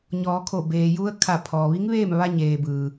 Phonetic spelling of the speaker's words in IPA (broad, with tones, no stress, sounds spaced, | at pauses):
ɲ ɔː˩˧ kʰ o˧˩ b eː˩ j u˧ ə̯ kʰ a˧˩ pʰ ɔː˩ ʋ i˧˥ ŋ ʋ eː˥˨ m ʋ a˧ ɲ eː˩ b ɯː˩